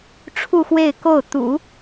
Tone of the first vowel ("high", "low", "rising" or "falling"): falling